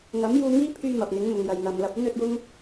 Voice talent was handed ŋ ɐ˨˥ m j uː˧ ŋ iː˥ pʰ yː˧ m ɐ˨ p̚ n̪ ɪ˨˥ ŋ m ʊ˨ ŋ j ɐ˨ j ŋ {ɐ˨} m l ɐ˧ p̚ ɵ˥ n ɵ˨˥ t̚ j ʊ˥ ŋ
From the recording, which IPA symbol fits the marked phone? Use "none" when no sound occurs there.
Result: ɐ˨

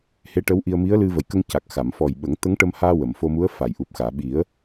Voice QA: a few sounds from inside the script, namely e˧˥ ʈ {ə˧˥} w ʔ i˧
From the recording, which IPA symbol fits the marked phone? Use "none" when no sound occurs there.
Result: ə˧˥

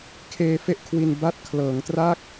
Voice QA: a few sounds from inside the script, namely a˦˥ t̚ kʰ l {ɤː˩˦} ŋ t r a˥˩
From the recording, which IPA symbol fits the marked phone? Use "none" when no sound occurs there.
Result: ɤː˩˦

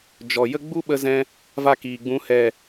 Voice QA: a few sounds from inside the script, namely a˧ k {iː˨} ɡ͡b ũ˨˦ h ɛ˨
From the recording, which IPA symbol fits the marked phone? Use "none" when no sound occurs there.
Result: iː˨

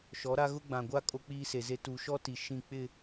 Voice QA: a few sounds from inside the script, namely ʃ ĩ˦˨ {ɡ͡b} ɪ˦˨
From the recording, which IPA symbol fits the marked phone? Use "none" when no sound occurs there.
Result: k͡p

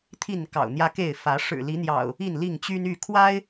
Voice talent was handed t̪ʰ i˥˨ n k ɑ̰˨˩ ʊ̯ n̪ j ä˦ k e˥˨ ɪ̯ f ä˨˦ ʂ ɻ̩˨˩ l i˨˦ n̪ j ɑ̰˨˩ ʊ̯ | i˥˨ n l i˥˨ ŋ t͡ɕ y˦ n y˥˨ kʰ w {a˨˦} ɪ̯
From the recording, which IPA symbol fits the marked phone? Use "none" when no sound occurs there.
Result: a˦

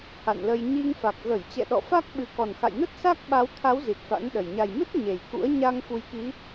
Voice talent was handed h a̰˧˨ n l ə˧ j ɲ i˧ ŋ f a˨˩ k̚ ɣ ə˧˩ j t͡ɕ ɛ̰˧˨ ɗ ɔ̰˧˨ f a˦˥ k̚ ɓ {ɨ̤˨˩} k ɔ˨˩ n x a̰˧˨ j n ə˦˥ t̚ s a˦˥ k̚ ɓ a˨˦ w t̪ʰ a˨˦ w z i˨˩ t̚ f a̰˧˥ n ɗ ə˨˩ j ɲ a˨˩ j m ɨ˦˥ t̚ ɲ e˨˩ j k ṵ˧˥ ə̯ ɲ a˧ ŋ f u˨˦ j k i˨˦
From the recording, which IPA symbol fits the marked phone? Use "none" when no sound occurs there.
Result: ɨ˧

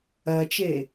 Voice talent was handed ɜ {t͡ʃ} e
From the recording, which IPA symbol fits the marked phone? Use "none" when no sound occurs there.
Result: t͡ʃ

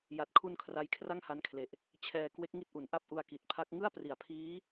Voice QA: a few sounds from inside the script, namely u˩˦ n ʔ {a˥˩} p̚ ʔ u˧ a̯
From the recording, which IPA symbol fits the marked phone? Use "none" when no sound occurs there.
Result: a˥˩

